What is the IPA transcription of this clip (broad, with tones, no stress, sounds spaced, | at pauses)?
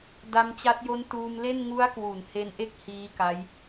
d a˧ m t͡ɕ a˦˥ t̚ j o˦˥ n t uː˧ m l e˥˩ n ŋ u˦˥ a̯ k w u˩˦ n h e˦˥ n ʔ e˥˩ k̚ h iː˦˥ k a˦˥ j